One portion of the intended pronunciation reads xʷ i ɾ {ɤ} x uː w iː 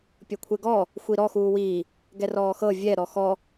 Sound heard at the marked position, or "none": ɔ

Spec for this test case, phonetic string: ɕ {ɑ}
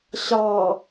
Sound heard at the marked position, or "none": ɑ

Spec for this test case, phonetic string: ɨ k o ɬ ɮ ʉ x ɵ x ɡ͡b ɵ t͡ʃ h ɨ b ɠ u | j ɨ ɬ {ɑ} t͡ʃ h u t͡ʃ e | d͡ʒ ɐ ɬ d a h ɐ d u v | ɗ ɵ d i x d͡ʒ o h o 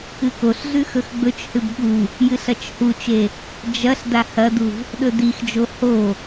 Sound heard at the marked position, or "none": ɐ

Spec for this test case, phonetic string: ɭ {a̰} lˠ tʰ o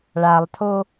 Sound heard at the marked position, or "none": a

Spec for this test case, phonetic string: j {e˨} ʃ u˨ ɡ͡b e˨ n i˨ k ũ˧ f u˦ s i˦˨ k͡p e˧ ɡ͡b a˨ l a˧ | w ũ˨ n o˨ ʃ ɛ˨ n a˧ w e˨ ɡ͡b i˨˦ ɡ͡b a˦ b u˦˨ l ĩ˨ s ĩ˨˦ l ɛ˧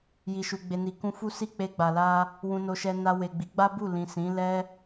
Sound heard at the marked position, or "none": i˨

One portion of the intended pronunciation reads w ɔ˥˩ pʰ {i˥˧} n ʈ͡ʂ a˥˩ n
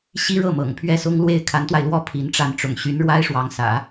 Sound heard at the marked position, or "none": i˧˥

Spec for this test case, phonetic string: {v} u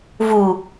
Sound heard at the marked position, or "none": v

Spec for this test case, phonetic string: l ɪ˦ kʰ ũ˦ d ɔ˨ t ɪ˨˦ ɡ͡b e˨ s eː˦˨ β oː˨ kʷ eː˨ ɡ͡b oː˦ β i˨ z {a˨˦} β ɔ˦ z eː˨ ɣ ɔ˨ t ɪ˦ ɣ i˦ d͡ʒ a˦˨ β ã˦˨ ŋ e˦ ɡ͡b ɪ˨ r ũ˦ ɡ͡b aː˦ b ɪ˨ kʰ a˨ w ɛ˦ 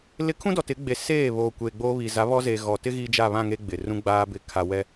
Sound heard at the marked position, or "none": a˨˦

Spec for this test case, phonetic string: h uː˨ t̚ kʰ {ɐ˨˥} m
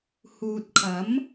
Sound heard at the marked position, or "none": ɐ˨˥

